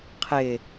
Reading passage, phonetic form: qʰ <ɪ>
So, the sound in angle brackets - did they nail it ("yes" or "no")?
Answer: yes